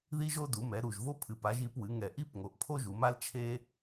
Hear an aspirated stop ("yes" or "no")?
yes